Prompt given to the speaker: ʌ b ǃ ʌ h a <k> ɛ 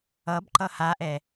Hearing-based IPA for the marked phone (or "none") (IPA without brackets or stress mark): ʔ